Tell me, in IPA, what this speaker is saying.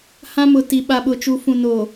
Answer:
hã˦mʊ˨ti˨ ɓa˨ɓʊ˨t͡ʃu˨ fũ˨no˨

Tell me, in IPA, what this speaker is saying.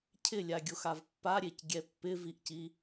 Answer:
cʰɪlʲaɡʲoxav pːaɾʲecɡʲɛ pːɪviʔci

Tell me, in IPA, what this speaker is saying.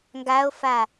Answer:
ŋɡao̯fa

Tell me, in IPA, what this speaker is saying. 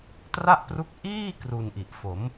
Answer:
tra˥˩ʔpru˦˥k̚ ʔiː˥˩ kru˧nʔi˨˩ʔfo˩˦m

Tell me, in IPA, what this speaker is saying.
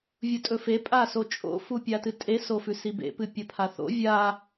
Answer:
vʲutʼɵfe pʼasot͡ʃʼo̰ fupʲatɨtʼe sofʉsibḛ pɨpʲɐpʰaθo̰ vʲa

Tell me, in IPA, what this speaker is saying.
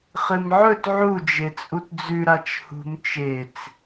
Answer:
χɨmʕɵt ʕu d͡ʒet͡sʼutd͡zʉ ɾat͡ʃhṳm t͡ʃet͡s

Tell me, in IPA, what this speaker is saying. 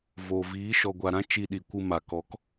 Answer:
voː˨viː˨˦ ʃɔ˨ɡʷa˨ɾã˧ t͡ʃi˧ɗi˨kʷɨ˧ ma˨kɔ˨˦k

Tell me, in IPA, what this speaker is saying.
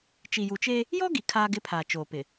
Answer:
t͡ʃi˨ju˨t͡ʃe˦ | jɔ˦ ɡi˨ kʰaː˦ɡɪ˦pʰaː˨ t͡ʃoː˨pɪ˨

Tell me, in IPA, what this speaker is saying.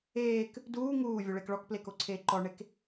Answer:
eːk | duː ŋuːvʲuɭek ɭɔkplekoǀʰeː ǃɔɳek

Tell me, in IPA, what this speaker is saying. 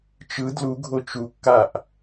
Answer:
t͡ʃɯ dluɡʱo t͡ʃukːaʔ

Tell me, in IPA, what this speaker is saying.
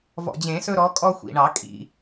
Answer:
vɔ̰˨˩d͡ʑẽ˨˩˦sɵ˦ɾɔ˨˦ kʼɔ˦xʷḭ˨˩ɳɑ˨˩˦ kʼḭ˨˩

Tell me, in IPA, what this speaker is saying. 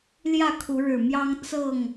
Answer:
ljä˥˨kʰu˨˦ɻɻ̩˨˩mjɑ˦ŋ t͡sɤ˥˨ŋ

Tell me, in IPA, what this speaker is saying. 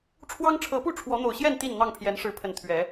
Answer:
ʈ͡ʂʰwɑ˦ŋʈ͡ʂʰɤ˨˦pu˥˨ ʈ͡ʂʰwɔ˨˦n̪o˨˩ʊ̯ɕjɛ˥˨n t̪i˥˨nn̪ɑ˥˨ŋpʰjɛ˨˦n ʂɻ̩˨˦pʰə˨˩n t̪ʰɥɛ˨˦

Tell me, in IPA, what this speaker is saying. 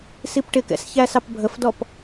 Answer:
sipʈɪkɛ̰s çæsɑpbʱəfdɔp

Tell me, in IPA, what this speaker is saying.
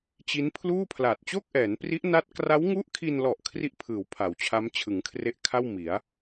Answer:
t͡ɕi˦˥npʰluː˥˩pʰla˨˩t̚ t͡ɕo˥˩k̚ʔɛː˩˦npri˦˥ʔna˦˥t̚ kra˦˥wŋu˦˥ʔkʰi˧nlɔ˨˩ʔ kʰri˥˩ʔpʰɯː˩˦w pʰa˩˦wt͡ɕʰa˦˥m t͡ɕʰɯ˩˦ŋkʰre˦˥ʔkʰa˥˩w mi˩˦a̯

